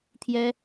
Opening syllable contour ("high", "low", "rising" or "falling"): high